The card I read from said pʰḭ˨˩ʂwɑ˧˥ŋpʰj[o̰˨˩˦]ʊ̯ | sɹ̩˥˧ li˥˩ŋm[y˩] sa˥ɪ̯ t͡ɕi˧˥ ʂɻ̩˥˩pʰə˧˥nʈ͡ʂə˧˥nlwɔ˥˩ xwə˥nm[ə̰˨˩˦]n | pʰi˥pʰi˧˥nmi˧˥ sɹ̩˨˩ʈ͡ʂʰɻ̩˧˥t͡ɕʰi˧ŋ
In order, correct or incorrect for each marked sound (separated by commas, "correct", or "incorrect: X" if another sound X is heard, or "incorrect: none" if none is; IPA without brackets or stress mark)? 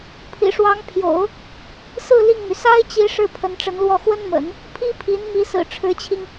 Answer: correct, correct, correct